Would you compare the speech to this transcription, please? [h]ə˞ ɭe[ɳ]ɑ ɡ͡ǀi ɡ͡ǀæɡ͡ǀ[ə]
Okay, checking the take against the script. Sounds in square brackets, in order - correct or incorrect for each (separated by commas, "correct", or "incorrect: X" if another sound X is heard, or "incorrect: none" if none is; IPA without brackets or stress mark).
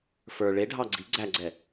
incorrect: f, incorrect: ɖʱ, incorrect: ɛ